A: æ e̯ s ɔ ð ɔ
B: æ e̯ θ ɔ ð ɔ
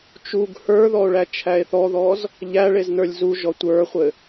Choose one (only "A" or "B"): B